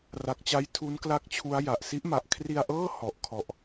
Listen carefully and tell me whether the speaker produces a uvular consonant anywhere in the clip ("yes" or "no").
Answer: no